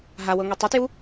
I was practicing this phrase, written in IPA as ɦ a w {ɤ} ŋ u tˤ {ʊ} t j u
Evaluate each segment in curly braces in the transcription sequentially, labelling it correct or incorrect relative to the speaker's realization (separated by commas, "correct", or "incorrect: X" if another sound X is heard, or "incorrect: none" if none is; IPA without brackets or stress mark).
correct, incorrect: u